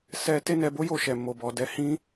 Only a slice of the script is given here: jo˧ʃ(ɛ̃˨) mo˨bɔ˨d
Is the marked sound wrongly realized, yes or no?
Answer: yes